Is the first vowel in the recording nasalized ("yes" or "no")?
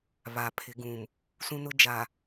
no